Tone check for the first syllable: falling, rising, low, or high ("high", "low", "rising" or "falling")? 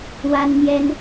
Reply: high